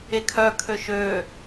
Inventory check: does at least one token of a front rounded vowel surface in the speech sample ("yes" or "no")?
yes